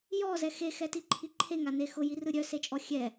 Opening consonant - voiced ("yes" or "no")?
yes